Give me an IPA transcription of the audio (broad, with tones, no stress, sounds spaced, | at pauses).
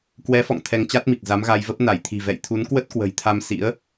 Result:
k w ɛ˨˦ f ɔ̰˧˨ ŋ t̪ʰ ɛ˧ ŋ t͡ɕ a˦˥ t̚ m i˨˩ k̚ z a˨˦ m ɣ a˧ j v ə˦˥ p̚ n a˧˩ j t̪ʰ i̤˨˩ v ɛ̰˧˨ j t̪ʰ u˨˦ n k w ə˦˥ t̚ k w ə̤˨˩ j t̪ʰ a˧ m s ḭ˧˥ ə̯